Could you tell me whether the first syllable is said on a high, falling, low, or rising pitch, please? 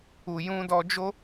low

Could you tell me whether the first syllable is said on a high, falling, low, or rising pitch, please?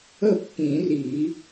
falling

